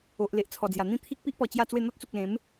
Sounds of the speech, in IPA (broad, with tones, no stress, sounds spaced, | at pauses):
o˨ ʔ l e˨ ʔ t͡sʰ ɔ˨˩ d͡z j a˨˩ n̪ ĩ˥˧ t̪ʰ i˦ k̚ p i˦ ʔ p ɔ˨˩ t͡ɕ j a˥˧ t͡s w e˥˧ n̪ ɔ˦ t̚ t͡s u˨ k̚ l ẽ˨˦ m